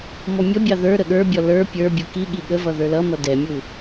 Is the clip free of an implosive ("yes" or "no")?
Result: no